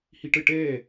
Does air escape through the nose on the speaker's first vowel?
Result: no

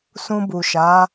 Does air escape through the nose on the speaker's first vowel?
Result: yes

